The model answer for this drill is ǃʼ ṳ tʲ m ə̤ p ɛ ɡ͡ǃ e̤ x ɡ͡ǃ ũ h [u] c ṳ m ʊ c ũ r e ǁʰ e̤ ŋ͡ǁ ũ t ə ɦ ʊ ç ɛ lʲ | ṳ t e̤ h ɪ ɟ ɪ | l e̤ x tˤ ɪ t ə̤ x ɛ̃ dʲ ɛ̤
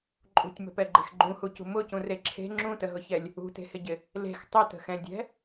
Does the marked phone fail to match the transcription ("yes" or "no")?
no